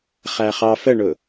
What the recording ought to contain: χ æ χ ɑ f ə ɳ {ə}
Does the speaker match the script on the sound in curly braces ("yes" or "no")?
no